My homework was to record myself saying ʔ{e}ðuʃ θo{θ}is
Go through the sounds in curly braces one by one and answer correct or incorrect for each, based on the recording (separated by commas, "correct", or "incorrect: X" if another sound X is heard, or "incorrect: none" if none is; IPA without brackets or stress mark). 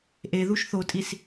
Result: correct, incorrect: tʼ